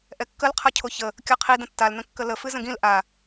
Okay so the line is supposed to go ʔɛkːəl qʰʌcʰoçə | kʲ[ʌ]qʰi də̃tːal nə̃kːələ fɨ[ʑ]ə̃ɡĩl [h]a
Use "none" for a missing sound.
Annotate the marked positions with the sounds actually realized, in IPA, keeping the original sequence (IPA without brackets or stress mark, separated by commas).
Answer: ʌ, z, ʔ